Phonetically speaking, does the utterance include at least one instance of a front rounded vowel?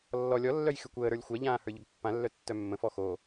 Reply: yes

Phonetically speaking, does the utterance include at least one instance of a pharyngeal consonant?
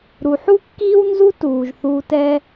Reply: yes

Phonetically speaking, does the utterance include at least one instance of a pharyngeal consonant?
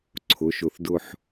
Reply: yes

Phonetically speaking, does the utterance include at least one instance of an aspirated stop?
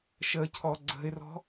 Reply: yes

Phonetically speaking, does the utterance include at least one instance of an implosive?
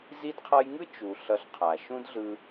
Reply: no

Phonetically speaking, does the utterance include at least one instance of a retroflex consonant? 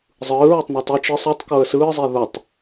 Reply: no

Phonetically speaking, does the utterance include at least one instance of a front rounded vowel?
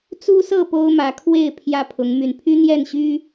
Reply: yes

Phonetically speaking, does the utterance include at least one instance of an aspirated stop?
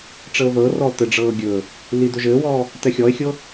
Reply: no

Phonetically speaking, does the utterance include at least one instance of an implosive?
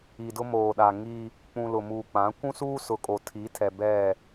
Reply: yes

